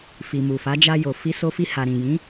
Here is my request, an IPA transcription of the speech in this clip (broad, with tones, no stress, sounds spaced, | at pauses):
f i˨ m u˨ f a˨˦ d͡ʒ a˧ j o˨ f i˧ s o˧ f i˧ h a˨ ɾ ĩ˨ j ĩ˨˦